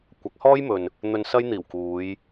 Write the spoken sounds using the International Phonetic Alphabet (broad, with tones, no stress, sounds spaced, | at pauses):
kʷ ɐ˨˥ k̚ h ɔː˥ j m ɵ˨ n | n̪ ɵ˧ n s ɐ˥ j n̪ iː˨˩ w k uː˨˧ j